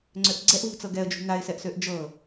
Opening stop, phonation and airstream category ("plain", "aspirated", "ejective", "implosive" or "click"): click